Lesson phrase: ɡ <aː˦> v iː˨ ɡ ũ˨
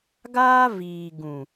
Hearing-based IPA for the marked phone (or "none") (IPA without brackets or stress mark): aː˦